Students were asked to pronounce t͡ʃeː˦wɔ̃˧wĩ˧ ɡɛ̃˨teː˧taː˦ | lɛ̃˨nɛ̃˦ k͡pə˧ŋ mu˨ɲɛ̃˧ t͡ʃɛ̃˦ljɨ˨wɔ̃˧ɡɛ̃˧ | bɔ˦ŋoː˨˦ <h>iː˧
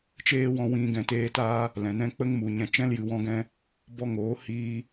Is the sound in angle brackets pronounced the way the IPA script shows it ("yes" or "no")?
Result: yes